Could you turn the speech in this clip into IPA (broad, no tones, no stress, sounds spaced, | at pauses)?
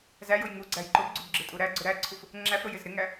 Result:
z æ j ʊ j ŋ u ɡ͡ǀ æ j ǃ ʊ b ɡ͡ǀ u b ɡ͡ǁ ɪ tʼ u ɾ æ ɡ͡ǀ ʊ ɾ æ ǀʰ u f | ŋ͡ǁ æ f ɾ ʊ j ɪ z ɾ ɪ ŋ æ